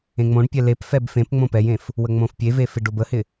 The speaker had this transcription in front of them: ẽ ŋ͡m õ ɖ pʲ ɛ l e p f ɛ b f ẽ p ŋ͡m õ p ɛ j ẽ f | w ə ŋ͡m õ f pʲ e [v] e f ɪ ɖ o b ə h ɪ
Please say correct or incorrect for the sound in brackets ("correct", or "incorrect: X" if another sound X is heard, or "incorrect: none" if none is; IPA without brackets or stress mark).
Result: correct